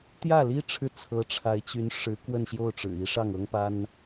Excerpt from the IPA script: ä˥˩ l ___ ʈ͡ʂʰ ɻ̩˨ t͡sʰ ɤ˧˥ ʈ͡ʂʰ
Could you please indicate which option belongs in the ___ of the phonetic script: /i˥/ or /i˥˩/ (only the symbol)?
i˥